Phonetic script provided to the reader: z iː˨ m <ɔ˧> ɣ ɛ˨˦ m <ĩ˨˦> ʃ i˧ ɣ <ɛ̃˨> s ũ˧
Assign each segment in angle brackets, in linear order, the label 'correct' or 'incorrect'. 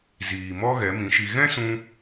incorrect: ɔ˦, correct, incorrect: ɛ̃˦

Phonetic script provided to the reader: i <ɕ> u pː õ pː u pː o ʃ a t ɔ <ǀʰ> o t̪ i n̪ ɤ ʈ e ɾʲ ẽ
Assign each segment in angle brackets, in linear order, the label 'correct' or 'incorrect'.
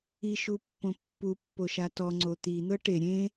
incorrect: ʃ, incorrect: ŋ͡ǀ

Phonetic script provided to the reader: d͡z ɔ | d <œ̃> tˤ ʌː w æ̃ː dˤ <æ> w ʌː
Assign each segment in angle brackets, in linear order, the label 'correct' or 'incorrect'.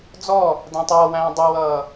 incorrect: æ̃, incorrect: ɛ

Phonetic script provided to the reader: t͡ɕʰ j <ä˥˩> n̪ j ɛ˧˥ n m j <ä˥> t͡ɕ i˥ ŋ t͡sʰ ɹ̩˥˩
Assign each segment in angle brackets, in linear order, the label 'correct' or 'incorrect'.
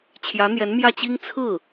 incorrect: ä˧˥, incorrect: ä˥˩

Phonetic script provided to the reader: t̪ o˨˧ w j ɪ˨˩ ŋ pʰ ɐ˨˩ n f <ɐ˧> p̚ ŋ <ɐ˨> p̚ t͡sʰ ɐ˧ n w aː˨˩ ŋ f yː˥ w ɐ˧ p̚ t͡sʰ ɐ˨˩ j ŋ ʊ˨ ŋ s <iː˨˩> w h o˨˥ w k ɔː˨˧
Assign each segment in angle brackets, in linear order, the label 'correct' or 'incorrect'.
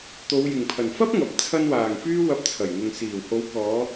incorrect: ɐ˥, correct, correct

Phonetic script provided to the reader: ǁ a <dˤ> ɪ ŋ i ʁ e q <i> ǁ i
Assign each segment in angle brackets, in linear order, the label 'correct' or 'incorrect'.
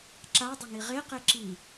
correct, incorrect: e

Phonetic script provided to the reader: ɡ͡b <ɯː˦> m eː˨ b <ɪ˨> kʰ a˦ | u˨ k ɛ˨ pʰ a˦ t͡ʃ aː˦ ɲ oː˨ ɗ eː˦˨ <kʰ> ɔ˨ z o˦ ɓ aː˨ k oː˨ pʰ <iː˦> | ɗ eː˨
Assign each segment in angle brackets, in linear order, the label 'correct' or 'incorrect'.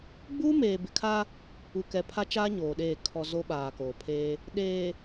incorrect: uː˦, correct, correct, incorrect: eː˦

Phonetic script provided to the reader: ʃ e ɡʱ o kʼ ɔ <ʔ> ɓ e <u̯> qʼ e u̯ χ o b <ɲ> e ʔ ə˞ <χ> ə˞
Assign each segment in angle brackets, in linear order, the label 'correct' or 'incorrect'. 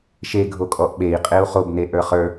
correct, incorrect: i̯, incorrect: n, correct

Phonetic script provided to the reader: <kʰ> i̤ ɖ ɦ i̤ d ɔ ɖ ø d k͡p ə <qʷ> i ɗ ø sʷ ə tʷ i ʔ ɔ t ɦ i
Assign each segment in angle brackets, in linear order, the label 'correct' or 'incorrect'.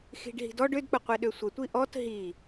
incorrect: x, correct

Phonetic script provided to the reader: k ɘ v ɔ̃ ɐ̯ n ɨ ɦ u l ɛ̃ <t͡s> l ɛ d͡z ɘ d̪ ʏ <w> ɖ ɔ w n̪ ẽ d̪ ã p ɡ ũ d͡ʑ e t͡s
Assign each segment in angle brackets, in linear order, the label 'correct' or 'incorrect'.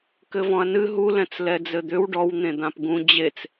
correct, correct

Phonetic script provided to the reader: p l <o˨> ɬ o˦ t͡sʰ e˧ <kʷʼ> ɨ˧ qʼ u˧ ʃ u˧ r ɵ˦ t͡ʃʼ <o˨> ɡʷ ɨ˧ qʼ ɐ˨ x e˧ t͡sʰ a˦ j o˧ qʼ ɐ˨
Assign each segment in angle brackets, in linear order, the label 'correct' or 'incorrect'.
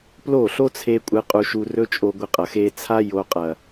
incorrect: o˦˨, correct, incorrect: o˧

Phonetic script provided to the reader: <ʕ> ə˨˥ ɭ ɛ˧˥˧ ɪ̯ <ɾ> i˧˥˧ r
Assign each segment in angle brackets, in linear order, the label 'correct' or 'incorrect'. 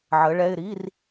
correct, correct

